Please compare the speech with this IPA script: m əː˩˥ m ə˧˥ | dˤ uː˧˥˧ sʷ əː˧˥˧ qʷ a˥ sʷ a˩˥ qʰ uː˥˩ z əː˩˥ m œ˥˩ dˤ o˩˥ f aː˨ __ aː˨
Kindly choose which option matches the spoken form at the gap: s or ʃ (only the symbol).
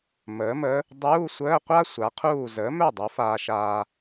ʃ